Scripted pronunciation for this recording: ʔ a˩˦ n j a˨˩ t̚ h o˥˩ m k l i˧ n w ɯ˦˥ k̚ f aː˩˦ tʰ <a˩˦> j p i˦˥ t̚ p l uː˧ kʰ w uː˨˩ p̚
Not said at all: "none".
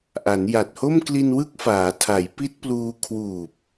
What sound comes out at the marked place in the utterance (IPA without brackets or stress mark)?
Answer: a˩˦